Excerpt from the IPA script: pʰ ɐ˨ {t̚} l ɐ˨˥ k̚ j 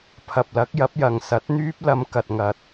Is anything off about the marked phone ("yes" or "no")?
yes